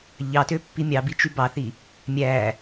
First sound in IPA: ʎ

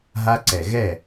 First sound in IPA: ɦ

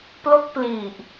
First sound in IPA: p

